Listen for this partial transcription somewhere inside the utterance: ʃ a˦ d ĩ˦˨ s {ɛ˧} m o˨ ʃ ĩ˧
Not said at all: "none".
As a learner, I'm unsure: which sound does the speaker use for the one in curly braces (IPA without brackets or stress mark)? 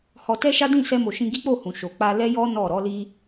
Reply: ɛ˧